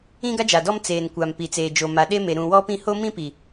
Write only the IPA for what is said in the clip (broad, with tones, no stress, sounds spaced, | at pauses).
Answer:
ĩ˦ ɡ a˦ d͡ʒ a˨ d ɔ˦ m t͡s eː˨ n kʷ a˨ m p i˨ t͡s eː˨ d͡ʒ o˨ m a˨ ɗ e˦ m e˨ ɾ ũ˨ w ɔ˦ p ĩ˦˨ h o˦ m ĩ˦ p i˨